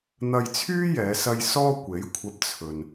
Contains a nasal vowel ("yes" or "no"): no